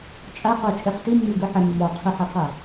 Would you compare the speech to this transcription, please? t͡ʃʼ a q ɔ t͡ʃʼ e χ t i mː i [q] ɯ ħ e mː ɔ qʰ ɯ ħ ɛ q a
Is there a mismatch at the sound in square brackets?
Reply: yes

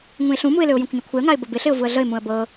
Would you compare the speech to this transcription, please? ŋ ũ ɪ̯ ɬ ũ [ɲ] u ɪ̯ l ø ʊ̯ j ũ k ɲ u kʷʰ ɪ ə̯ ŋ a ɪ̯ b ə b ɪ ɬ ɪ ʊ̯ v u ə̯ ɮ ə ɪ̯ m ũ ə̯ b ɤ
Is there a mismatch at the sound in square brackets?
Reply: yes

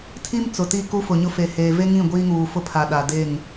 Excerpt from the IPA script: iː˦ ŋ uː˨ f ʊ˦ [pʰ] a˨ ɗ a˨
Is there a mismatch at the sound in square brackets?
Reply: no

